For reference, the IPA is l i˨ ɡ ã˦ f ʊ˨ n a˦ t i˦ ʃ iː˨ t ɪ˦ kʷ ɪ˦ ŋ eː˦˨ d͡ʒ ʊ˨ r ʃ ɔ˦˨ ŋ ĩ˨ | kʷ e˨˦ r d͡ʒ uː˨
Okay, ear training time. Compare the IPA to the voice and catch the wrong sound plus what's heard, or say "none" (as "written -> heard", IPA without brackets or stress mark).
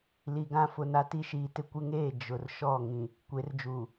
none